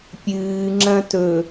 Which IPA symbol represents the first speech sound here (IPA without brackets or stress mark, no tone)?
pʲ